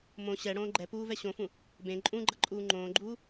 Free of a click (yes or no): no